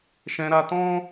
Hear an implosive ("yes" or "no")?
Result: no